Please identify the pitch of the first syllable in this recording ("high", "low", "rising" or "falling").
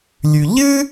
low